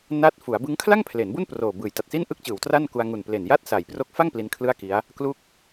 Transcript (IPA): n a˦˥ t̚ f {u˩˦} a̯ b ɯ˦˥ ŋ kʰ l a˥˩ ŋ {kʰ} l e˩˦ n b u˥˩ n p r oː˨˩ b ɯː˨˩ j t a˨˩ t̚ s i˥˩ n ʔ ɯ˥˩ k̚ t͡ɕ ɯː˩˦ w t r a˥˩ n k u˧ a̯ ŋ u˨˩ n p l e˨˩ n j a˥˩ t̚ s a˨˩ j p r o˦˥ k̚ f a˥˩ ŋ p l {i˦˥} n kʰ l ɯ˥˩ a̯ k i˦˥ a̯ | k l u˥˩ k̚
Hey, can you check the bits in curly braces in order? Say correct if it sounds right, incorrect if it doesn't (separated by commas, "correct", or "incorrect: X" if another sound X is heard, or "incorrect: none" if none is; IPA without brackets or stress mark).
correct, incorrect: pʰ, correct